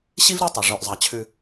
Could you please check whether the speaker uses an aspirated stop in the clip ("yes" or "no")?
yes